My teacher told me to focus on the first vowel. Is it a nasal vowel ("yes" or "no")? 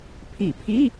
no